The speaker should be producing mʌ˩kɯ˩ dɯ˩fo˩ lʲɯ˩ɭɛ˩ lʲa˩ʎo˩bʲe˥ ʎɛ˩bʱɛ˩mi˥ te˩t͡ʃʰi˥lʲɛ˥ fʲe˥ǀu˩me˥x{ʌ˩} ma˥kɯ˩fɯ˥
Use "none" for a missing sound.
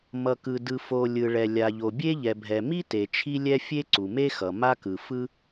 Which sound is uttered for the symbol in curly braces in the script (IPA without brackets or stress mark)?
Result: ʌ˩